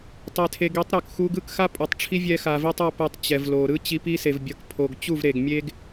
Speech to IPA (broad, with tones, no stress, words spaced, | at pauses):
tˤe˨tʰe˨ɡi˨˦tˤ ɾo˨kxu˧ɡɯ˦k xa˦pʼo˨tˤʈ͡ʂʰi˦vʲɛ˧ xa˨vi˧tˤʌ˧ pɛ˧tˤt͡ɕɛ˨vlo˨ ɾɯ˦ t͡ɕi˧pi˦se˨v bʲʌ˨kpʰo˨ɡ t͡ɕu˦˨vɾe˨ɡmʲe˦ɡ